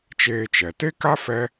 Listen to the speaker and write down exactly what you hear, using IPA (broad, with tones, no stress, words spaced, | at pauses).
t͡ʃeː˧t͡ʃɛ˨ te˦ka˦ fɛ˦